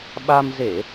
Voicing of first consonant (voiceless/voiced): voiced